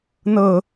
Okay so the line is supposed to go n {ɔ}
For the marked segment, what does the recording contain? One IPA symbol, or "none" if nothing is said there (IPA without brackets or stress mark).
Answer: ɤ